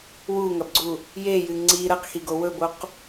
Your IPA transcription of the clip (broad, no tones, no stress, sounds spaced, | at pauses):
w u ŋ ɐ b ɡ͡ǀ u | j e j ɨ ŋ͡ǀ i ɾ ɐ q x i ɡ o w ɵ b o q